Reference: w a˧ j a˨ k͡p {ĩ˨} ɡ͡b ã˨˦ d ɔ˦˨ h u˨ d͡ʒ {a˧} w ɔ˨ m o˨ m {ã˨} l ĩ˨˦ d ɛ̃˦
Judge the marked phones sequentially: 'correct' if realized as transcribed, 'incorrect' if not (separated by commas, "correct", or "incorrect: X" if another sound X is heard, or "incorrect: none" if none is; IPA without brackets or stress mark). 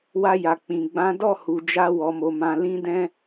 correct, correct, correct